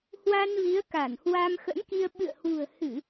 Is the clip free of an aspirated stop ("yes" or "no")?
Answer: yes